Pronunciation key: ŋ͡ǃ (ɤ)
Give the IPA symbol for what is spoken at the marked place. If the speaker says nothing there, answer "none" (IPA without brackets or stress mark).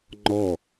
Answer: ɔ